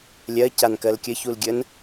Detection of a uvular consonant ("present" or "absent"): absent